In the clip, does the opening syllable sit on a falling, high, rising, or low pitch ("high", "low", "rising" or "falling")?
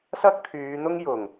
high